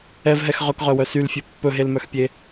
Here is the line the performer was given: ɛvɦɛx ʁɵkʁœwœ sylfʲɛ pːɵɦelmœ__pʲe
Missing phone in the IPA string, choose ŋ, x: x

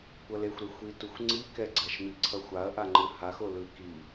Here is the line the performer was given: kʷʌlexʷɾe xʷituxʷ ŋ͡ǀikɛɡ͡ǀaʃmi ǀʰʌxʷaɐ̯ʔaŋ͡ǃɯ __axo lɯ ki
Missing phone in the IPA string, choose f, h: h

